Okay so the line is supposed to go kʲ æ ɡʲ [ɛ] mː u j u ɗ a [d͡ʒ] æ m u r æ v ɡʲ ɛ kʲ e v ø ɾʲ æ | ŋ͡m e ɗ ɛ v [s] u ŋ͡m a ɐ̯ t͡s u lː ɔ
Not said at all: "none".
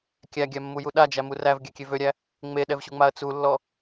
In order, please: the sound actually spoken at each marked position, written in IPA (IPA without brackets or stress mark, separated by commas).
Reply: æ, d͡ʒ, ɕ